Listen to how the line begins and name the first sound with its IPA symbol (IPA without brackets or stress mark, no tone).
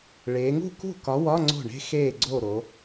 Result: ɭ